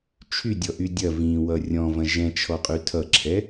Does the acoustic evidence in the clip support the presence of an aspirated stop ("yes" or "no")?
yes